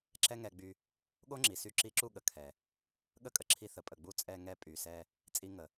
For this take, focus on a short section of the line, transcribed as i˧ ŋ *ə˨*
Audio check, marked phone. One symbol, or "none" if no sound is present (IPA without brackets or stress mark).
ə˨